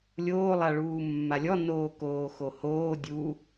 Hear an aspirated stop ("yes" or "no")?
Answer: no